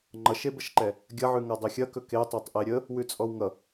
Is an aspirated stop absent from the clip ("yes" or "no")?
yes